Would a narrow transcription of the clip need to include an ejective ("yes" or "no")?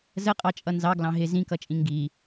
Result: yes